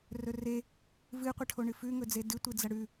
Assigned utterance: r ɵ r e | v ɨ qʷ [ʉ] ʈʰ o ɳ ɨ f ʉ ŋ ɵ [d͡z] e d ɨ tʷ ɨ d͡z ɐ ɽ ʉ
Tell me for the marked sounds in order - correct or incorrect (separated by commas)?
incorrect, correct